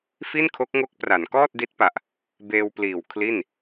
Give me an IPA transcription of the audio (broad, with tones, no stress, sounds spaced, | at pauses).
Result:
f i˥˩ n kʰ o˦˥ k̚ ŋ o˦˥ k̚ p r a˩˦ n k ɔː˥˩ t̚ d i˦˥ t̚ p a˨˩ ʔ | b eː˧ w p l iː˨˩ w kʰ l i˥˩ n